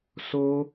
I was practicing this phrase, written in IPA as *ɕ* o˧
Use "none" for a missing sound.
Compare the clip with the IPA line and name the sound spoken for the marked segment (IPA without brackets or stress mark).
s